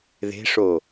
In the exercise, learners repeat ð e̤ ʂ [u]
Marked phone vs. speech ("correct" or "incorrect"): incorrect